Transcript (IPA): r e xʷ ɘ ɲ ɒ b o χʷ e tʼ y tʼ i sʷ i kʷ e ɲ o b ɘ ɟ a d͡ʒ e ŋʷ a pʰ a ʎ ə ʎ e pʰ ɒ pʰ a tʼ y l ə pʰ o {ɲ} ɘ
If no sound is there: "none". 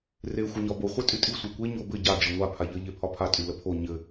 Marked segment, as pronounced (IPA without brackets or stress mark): ɲ